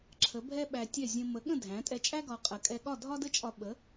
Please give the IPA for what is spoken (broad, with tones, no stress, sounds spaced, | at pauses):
ǁʰ ə˩˥ bʱ ɛ˥ ɓ æ˧ tʲ ɛ˥˩ zʲ ə̃˧ m ə˩˥ ɠ ə̃˥˩ dʱ æ̃˩˥ tʼ ɛ˧ t͡ʃʼ æ˥ ɡ ɒ˧ qʼ ə˩˥ kʼ ɛ˧ ɠ ɒ˥˩ dʱ ɒ˥ d ə˥ t͡ʃʼ ɒ˧ ɓ ə˩˥